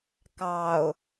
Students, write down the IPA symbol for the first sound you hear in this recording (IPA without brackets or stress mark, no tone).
k